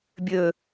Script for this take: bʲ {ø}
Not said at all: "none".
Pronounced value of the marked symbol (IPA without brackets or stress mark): ø